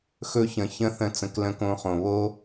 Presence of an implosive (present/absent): absent